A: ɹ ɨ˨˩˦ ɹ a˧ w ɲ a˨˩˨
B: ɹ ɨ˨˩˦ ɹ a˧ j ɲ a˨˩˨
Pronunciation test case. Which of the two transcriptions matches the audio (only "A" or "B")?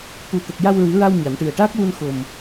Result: A